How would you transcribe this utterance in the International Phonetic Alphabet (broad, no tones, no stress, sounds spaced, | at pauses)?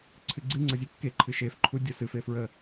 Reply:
ǀʰ ɨ ɡ͡ǀ ɨ ŋ͡ǀ ʌ zʲ e kː e ǃʰ ɨ ʃ e f ǃʰ u dʲ ʌ s ɨ f e f ɹ ə